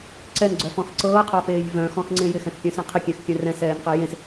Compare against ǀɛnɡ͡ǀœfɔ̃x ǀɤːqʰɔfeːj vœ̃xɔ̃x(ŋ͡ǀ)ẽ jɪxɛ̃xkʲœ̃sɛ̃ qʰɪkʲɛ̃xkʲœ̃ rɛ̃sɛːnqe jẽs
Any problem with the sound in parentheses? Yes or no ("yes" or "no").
no